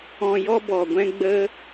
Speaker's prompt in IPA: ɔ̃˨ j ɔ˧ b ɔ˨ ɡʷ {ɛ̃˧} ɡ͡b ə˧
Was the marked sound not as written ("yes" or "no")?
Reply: no